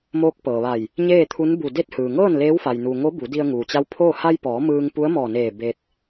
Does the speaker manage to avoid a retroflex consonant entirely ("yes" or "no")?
yes